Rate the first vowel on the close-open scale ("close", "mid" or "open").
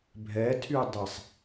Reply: mid